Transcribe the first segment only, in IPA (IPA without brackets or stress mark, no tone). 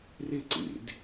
r